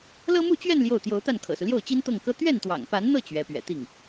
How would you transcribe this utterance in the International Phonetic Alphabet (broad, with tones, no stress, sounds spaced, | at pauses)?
l ɤ˥ m u˥˧ t͡ɕ ɥ ɛ˥˧ n l j o˥˩ ʊ̯ t̪ j o˧˥ ʊ̯ t̪ a˥˩ n kʰ ɤ̰˨˩ s u˦ l j o˥˩ ʊ̯ t͡ɕ i˥ n t̪ ɤ˥˩ ŋ k ɤ˥ t̪ ɥ ɛ˥˩ n t̪ w ɑ̰˨˩ ŋ p a˧˥ n n̪ ɤ˥˩ t͡ɕ ɥ ɛ˧˥ p ɥ ɛ̰˨˩ t̪ i˥˩ ŋ